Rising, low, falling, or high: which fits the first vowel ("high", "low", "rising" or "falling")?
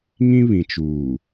high